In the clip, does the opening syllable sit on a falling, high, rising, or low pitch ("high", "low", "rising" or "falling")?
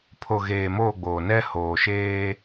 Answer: low